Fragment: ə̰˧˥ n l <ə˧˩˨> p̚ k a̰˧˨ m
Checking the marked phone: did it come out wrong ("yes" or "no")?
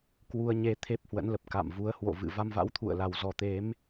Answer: yes